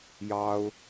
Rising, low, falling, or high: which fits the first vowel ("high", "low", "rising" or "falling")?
high